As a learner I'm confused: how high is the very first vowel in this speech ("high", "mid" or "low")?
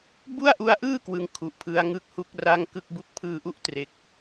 high